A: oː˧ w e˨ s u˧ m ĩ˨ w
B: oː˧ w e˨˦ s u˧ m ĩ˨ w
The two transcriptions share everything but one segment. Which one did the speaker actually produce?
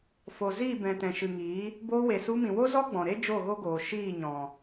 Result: A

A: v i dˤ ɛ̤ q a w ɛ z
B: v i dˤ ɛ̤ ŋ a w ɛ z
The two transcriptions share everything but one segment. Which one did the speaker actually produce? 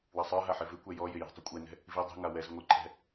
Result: B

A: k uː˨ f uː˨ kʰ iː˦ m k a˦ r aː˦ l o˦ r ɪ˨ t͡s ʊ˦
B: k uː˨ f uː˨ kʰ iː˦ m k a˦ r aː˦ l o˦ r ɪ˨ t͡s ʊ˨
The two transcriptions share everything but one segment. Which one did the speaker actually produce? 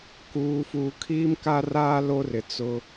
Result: A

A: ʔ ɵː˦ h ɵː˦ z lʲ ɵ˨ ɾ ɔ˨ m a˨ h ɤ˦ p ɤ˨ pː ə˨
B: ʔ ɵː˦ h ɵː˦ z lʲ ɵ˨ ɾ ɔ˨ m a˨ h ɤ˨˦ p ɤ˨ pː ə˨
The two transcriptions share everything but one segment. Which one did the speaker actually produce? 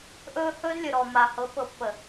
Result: B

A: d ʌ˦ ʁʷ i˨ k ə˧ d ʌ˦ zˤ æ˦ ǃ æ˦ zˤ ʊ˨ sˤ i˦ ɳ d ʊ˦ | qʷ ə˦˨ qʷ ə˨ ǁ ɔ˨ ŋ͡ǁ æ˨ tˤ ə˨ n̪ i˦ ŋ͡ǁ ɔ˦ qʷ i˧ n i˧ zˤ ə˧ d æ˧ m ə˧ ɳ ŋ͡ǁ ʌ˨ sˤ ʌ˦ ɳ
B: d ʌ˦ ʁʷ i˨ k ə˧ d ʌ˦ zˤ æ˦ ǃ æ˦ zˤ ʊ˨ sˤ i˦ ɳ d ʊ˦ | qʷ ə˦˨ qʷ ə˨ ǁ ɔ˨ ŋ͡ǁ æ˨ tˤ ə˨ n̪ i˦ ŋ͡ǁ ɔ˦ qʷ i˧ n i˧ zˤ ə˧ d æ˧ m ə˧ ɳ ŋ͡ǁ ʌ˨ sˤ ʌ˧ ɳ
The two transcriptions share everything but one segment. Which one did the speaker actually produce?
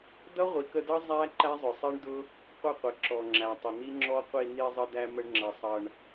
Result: B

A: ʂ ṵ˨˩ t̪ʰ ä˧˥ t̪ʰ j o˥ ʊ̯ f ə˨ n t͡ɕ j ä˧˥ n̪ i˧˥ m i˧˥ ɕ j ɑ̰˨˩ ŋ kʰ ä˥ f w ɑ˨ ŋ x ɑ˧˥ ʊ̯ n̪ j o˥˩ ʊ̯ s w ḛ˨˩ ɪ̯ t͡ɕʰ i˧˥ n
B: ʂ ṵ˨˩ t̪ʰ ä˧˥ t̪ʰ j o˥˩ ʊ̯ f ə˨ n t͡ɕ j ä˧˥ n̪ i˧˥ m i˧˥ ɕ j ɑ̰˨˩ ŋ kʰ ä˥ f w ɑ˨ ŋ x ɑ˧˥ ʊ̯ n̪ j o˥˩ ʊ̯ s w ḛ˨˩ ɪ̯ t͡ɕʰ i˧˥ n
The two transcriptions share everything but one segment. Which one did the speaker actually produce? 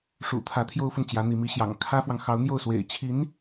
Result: A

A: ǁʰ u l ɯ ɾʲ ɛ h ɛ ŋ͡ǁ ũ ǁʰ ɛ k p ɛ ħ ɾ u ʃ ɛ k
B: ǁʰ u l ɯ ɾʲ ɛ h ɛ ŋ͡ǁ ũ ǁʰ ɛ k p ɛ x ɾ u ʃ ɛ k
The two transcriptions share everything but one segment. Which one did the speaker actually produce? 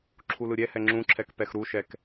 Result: B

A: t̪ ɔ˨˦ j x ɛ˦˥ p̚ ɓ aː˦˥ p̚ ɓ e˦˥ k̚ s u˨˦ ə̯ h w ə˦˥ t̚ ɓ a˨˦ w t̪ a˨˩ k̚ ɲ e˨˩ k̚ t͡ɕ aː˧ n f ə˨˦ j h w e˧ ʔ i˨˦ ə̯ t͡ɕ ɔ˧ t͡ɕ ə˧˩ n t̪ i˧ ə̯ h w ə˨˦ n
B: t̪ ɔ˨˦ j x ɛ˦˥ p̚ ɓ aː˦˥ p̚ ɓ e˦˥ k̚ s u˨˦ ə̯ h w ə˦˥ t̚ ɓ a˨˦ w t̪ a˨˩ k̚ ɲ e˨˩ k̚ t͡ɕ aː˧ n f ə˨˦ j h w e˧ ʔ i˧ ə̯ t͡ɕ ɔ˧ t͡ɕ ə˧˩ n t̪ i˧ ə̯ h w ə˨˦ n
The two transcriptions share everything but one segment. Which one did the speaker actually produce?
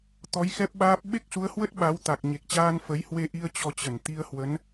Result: B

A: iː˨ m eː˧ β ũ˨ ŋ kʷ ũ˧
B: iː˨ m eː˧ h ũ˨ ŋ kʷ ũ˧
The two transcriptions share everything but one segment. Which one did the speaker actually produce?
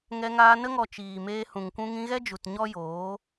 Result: B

